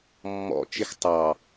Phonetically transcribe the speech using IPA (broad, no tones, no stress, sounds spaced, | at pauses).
mː ɔ̰ t͡ʃ ɪ x tˤ ɑ